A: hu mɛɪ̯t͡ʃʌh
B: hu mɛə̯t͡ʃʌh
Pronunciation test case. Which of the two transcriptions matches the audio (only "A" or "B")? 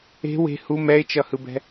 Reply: A